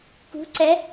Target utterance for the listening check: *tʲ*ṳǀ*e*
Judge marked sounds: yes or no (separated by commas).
no, no